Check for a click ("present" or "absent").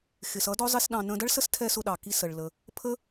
absent